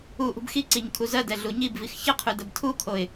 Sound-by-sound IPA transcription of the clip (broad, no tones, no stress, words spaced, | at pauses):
u ʔṳbxiǀiɲ kʰuzɜdɛ ɮuɲibvix çəqʰʉ dəbtʰukʰoɪ̯